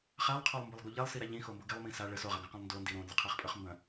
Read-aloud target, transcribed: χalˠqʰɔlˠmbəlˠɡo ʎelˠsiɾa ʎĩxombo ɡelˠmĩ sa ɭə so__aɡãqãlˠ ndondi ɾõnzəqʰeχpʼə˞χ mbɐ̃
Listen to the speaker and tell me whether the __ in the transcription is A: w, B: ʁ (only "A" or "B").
B